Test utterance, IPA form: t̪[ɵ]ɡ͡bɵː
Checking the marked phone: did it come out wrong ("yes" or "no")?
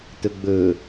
no